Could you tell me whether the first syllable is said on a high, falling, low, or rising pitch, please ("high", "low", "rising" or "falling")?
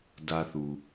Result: high